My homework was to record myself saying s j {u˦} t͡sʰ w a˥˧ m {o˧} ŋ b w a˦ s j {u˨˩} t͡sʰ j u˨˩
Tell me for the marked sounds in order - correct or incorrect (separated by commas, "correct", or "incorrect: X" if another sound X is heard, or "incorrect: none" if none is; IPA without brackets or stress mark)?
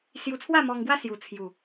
incorrect: u˧, incorrect: ɔ˧, correct